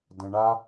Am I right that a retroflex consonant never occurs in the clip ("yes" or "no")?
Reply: no